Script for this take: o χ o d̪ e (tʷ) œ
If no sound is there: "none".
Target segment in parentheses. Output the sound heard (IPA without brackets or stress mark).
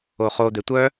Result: tʷ